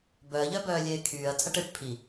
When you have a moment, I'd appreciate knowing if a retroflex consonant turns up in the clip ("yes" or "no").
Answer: yes